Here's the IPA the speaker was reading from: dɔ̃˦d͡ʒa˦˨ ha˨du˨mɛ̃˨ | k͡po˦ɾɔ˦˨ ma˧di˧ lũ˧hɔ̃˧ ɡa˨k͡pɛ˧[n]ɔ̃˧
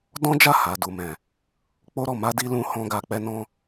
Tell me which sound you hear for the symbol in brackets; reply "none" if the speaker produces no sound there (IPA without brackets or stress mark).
n